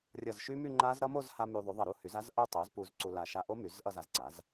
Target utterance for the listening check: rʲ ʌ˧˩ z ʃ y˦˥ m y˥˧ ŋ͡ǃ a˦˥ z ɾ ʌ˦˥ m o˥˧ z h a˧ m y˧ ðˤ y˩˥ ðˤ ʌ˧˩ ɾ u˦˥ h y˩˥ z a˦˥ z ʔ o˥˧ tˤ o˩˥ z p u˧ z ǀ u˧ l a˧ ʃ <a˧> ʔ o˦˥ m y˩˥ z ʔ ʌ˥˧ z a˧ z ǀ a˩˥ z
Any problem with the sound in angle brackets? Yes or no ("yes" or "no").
no